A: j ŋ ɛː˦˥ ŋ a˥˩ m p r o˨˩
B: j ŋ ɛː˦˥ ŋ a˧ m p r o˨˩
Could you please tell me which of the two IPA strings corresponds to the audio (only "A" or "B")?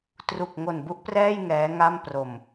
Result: A